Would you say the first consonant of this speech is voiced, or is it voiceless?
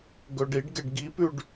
voiced